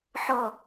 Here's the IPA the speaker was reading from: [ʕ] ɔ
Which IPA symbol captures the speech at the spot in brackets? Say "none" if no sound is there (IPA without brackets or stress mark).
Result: ħ